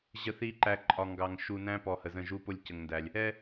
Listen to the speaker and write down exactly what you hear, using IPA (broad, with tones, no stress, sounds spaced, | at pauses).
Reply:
ʑ ə˨ θ i˨ ǃ æ˨ ǃʼ ɒ˨ ŋ ɡ ɑ˨ ŋ ʃ u˨ n æ̃˦ p ɔ˨ h ə˨ z ə̃˦˨ ʒ u˦ p ʊ˦ lʲ c ə˨ ŋ n d æ˨ lʲ | ɛ˦